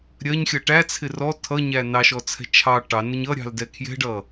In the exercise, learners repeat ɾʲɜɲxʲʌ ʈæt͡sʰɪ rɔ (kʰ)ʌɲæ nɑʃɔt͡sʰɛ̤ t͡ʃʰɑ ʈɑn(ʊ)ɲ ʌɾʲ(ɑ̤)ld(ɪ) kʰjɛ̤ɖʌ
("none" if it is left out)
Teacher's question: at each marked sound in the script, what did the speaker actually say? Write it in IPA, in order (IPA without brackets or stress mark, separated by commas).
tʰ, ʊ, ɑ̤, ɛ